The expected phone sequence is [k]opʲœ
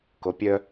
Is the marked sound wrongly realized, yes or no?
no